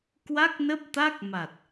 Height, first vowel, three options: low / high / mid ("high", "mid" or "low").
low